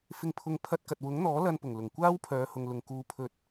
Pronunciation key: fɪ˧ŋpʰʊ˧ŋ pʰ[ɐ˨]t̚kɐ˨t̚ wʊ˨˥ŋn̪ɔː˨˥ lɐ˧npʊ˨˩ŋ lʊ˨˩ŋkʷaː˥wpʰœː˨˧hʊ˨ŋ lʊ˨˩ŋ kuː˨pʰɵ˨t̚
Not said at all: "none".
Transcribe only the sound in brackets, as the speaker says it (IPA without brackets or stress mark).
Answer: ɐ˧